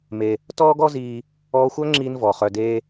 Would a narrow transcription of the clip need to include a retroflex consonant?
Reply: no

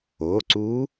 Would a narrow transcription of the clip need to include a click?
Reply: yes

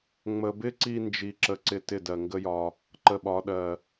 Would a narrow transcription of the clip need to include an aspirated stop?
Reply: no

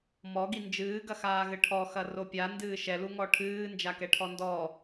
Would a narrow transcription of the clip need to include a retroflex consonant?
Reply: yes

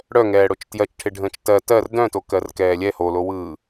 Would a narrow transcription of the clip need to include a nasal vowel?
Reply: yes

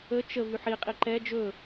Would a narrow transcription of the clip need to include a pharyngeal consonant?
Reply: yes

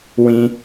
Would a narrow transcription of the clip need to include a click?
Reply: no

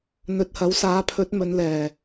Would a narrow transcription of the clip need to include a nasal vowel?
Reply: no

